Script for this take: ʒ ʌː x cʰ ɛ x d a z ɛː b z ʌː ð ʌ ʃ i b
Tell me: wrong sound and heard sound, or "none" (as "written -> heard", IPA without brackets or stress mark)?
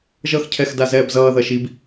none